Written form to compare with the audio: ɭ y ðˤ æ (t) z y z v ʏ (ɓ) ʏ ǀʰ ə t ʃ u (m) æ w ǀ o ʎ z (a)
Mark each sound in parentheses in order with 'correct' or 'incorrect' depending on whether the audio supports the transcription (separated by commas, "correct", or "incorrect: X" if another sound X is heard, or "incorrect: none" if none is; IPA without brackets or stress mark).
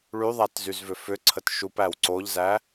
correct, incorrect: f, incorrect: p, incorrect: æ